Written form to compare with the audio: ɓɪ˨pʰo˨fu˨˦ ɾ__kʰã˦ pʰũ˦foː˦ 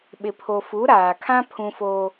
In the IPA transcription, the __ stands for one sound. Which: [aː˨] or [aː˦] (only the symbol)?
aː˨